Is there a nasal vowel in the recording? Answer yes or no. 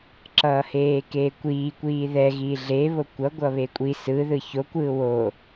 no